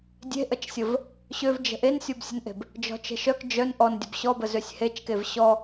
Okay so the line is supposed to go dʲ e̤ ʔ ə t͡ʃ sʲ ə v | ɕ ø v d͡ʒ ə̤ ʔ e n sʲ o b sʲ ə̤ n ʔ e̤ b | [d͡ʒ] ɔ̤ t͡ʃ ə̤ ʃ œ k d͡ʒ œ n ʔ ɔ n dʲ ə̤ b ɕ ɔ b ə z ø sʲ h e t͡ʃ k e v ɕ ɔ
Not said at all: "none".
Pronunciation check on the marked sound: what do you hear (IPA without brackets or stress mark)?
d͡ʒ